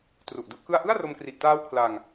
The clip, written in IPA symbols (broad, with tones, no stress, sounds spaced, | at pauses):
t r u˨˩ ʔ d u˥˩ ʔ k ɯ˥˩ a̯ ʔ ɯ˥˩ a̯ r o˧ m k r i˨˩ ʔ t aː˦˥ w kʰ l a˧ ŋ